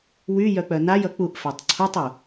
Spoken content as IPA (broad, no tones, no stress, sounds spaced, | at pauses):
w y j œ k͡p œ n a j ʌ k͡p u ʔ f a tˤ ǀʰ u tˤ u